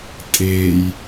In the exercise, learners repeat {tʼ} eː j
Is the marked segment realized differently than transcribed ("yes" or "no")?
no